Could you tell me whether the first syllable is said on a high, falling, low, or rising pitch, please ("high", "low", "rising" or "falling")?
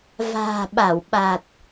low